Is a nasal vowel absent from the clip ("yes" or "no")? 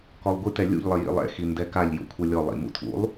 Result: yes